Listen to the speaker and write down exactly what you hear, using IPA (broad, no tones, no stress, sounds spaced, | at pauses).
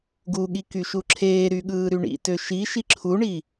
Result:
ɡ u ɠ i k y ʃ u ǁʰ eː ɾ y ɠ ɯː ɾ y ɳ ḭ t ø ʃ i ʃ i ǁʰ u ɳ i